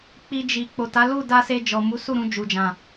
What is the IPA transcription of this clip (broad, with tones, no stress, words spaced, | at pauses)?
k͡pi˨ d͡ʒi˨ k͡po˨ta˨˦lu˦˨ da˧se˧d͡ʒɔ˨ mu˨˦su˦˨ɾũ˧ d͡ʒu˨d͡ʒã˨